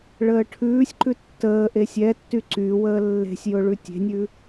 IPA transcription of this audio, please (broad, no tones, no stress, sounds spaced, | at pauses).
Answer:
ɭ əː ʈʰ ʉː sʲ ǃ ʉ tː əː ʔ e sʲ ɛ tː y ǀ y w əː lː e̤ sʲ j ʊ ɭ ʉ tʲ e̤ nʲ ʉ